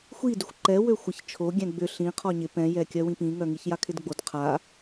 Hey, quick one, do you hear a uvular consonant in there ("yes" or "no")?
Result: yes